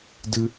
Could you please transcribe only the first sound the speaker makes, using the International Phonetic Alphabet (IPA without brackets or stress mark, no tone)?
d